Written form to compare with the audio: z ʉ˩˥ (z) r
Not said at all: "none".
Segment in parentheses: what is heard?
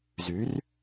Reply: none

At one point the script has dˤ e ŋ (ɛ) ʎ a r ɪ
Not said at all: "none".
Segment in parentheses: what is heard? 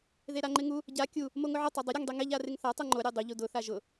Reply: ɛ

